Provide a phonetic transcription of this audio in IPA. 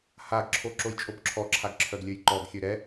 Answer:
haɡǁʰo ǁojt͡ʃʼobǁʰɔǁʰaɡ ǁʰœɡlʲøjǃɔɡxʲø ɾɛ

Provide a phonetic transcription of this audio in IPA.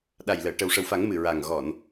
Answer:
ɗa˨˩jləː˨˩˨ ʈə˨˩wʂə˨˩wfa˨˩˦ŋ mɨ˨˩ɹa˨˩ŋ ɣɔ˨˩˨n

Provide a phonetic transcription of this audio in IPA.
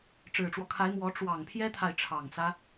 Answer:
ʈ͡ʂɻ̩˨˩ʈ͡ʂwɔ˦kʰa˧˥ɪ̯mwɔ˧˥ ʈ͡ʂwɑ˨˩ŋpʰjɛ˥t̪ʰa˨ɪ̯ ʈ͡ʂʰɑ˨˩ŋt͡sä˦

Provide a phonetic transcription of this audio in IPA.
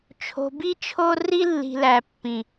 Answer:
t͡ʃʰo̤˨bi˦t͡ʃʰo˦ ri˦lːi̤˨læ˨pːĩ˨

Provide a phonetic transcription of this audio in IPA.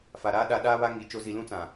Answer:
fa˨ɾaː˦ ɗa˦ ɗaː˦βa˦ŋi˨˦ t͡ʃo˦zi˦ lũ˦t͡sã˨

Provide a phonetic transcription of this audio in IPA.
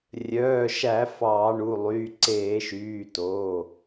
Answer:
rʲœː˩˧˩ʃæ˧˩˧ fɑː˧˩˧ɳu˩˧˩lˠyː˩˧˩ ǀeː˧˩˧ʃyː˩˧˩to˩˧˩

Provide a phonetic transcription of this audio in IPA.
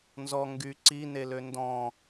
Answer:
nzɔ ŋɡy ǀinelø ndɔ̃

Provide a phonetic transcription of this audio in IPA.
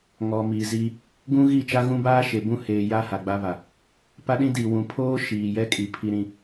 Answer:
ŋɔ˨mi˨ ziː˦ | ɡũ˦ɣi˦˨ t͡ʃa˦ɣũ˦baː˦ ʃe˨bũ˦˨heː˨ ja˦ ha˨ɡ͡ba˦βa˨ | pa˦ɗĩ˦ di˨wũ˨ pʰoː˦ʃiː˨jɛ˦kʼi˨ pʰi˦ɾĩ˦

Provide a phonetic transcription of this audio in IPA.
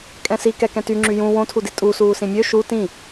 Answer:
kʼɛ̃si kɛkɛ̃tyŋ͡ǁy jũ wõtʰudi tʼusuːsĩ mʲø ʃu tĩ

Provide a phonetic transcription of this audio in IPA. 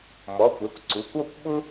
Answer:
mɔ˩˧˩kʷɛ˩˧˩kʷǀu˩˧˩kʷ ɔ˦˨kʷ ɓʊ˥

